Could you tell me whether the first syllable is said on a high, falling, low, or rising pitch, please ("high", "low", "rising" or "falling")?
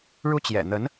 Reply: high